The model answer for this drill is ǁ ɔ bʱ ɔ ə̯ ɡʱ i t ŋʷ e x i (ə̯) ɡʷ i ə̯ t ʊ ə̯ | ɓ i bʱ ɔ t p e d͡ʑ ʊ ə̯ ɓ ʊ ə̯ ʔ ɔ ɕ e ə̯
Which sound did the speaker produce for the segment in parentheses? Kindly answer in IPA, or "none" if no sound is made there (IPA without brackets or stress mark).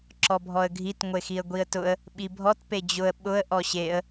ə̯